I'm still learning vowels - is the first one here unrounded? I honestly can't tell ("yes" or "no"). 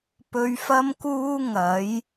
no